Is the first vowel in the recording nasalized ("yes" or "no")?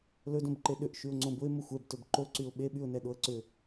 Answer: no